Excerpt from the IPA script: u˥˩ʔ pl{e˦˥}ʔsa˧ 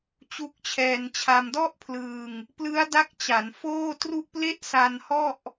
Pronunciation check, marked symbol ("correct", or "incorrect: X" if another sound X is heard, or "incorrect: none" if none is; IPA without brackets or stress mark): incorrect: e˥˩